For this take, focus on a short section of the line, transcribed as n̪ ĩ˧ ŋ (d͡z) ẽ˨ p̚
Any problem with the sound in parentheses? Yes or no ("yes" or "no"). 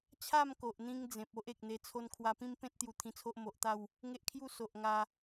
no